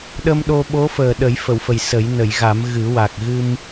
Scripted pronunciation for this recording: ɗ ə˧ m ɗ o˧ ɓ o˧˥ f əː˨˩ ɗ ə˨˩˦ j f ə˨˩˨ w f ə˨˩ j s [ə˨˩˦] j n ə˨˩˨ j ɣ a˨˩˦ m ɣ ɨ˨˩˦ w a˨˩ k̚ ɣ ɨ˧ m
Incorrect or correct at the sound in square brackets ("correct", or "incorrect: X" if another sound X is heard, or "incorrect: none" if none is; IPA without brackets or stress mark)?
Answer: correct